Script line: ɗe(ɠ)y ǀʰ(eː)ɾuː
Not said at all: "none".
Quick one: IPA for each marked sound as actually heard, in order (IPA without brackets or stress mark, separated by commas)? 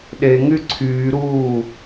ŋ, yː